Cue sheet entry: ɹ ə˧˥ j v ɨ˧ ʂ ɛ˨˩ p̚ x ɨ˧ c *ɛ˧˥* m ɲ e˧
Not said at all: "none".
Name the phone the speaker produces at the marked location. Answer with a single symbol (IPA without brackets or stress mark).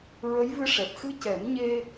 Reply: ɛ˨˩˦